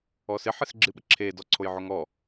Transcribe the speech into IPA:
ɔ s ɪ ħ ɪ s ɡ͡ǁ ɨ ɓ ə ǁʰ e d ɔ ǀʰ o j ʕ o ŋ ɔ

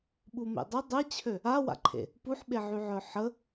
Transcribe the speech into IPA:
ɓ u m ḛ dˤ ə dˤ ɛ t͡ɕʰ ø | a w a̰ ǃʰ ḛ | p u ħ ɓ e ʕ y ʕ œ ħ ə

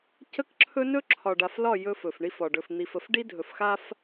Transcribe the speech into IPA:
c ə˦ k ǁʰ ɵ˦ n ɵ˦ ǁʰ ɒ˨ ɖ a˨ f l ɒ˦˨ j ɵ˦ f ɵ˨ f ɳ i˦ f ɒ˨ ɖ ɵ˨ f n̪ i˨ f ə˨ f ɖ i˦ dʱ ɵ˨ f x a˦ f

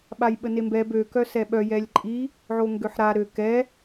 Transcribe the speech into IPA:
ɓ a j ɓ ə n e m b ɛ b ø k œ s ɛ ɓ œ j ɛ lʲ ǃʼ i | ʕ o ŋ ɡ ø ħ ɾ a ɾ ø k ɛ

